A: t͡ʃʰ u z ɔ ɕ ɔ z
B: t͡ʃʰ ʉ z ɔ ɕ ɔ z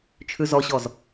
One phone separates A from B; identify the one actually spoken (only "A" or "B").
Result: B